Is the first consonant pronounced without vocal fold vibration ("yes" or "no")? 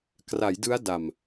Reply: yes